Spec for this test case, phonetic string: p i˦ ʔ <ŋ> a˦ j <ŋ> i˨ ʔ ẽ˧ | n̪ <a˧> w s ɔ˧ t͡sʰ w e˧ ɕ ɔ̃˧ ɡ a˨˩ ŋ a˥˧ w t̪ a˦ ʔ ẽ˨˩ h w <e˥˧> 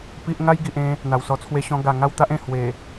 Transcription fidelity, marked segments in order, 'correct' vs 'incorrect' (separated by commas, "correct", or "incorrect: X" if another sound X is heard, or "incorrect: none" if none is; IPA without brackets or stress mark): correct, incorrect: ɡ, incorrect: a˨˩, incorrect: e˨˩